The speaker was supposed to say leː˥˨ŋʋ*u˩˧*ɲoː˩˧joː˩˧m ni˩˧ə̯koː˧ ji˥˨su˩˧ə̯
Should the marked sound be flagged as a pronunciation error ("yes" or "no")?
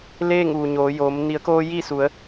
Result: yes